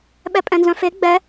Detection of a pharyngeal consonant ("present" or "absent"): absent